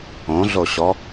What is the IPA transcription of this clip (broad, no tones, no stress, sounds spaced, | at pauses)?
õ ɮ o ɕ ɔ